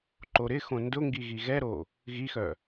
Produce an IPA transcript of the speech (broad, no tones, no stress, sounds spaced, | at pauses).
ǃ o ɾ ɪ x õ n d ʊ ŋ ɡ i ɣ i ɣ ɛ ɾ o | ɣ i x œ